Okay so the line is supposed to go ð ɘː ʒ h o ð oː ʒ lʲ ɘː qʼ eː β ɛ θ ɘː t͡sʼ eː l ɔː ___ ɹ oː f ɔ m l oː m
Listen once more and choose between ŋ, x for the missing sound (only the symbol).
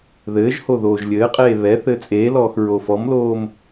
x